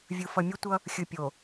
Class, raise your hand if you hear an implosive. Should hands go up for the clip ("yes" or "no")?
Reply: no